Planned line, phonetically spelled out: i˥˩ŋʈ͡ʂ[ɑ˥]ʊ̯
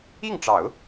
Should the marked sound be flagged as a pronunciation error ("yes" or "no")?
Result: yes